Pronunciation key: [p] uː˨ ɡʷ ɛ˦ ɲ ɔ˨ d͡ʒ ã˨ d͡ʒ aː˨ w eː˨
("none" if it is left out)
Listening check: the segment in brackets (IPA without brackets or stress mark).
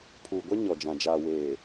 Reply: pʰ